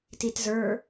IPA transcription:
t i t z ə˞

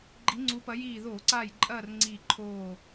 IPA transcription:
ɡ͡ǃ i˨˦ ŋ͡ǀ u˨˦ p ɐ˨˦ j iː˧˩ ð oː˧˩˧ ǀ aː˧˩ j ǃʼ ɐː˥˨ r ŋ͡ǀ iː˧˩ ǃʰ oː˧˩

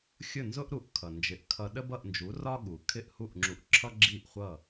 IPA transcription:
xʲ ʊ˥˩ n z ʊ˥ ʔ ɾ u˩˥ ʔ kʰ ʌ˩ n d͡ʒ ɪ˩˥ ʔ kʰ ʌ˧ ɗ ə˥ b ʌ˥˩ ʔ n d͡ʒ u˩˥ r ɒ˥ ɠ u˩ kʰ ɪ˥˩ ʔ h u˥˩ ʔ ŋ͡ǁ u˧ ʔ ǁʰ ʌ˥ ɡ͡ǁ i˥˩ ʔ χʷ ʌ˥˩

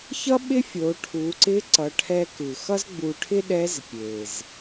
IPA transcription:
ç ʌ˥ ɓ ɪ˥ fʲ o˩˧ ʈʰ u˩˧ ǀ ɪ˧˥ ǀ ʌ˩˧ ʈʰ ɛ˧ k ɯ˩ x ʌ˥ z ɡ͡b u˧ ʈʰ ɪ˥ ɗ ɛ˧˥ z pʲ e˩ z

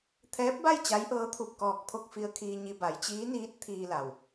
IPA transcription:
t̪ʰ ɛː˧˥ p̚ b a˥˨ j t͡ɕ a˧˥ j ʔ ɤː˧˥ t̪ʰ u˧˩ p̚ k ɔː˧˩ k̚ pʰ o˥˨ k̚ f i˧ ə̯ kʰ iː˧ ɲ i˧ b a˩˧ j t͡ɕ iː˧˥ n iː˧˥ t̚ t̪ʰ iː˧ l a˩ w

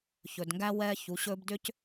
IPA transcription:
ç ɵ˨ d ŋ ɡ æ˦ w ɛː˦ ç u˨˦ ɕ ɵː˦ b d ʏ˦ c

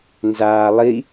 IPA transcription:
n z aː lˠ i

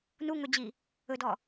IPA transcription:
n u ŋ ɵ d͡ʑ i | ɵ d ɔ

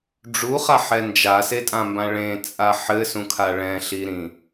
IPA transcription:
ɖ͡ʐ u χ a ħ ɛ n d͡ʒ a s e tʼ ã m b ã ɭ ẽ t͡sʼ a ħ ɘ s ũ kʰ a ɭ ɛ̃ ɬ i ɾ ĩ

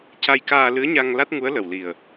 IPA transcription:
c a˧ j k aː˧ l ɨ˧˥ ə̯ ɲ a˧ ŋ l a˦˥ t̚ ŋ u˧˥ ə̯ l ə˨˩ w l i˨˩ ə̯

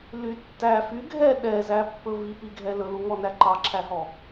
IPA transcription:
l y tː æ f y ɡʱ ɛ ɗ ɛ z æ pː ɵ v i p i ɡʱ ɛ l ɵ l u ŋ ɔ n æ ǃ ɑ ǁʰ æ ɦ ɔ

